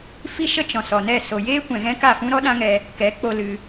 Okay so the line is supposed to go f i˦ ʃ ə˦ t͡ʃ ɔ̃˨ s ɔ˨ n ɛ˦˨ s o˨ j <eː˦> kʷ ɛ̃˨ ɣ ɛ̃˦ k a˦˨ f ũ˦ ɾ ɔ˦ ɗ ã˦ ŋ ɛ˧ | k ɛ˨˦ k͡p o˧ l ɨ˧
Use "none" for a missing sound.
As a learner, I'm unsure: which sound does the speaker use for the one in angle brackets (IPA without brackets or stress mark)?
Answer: eː˦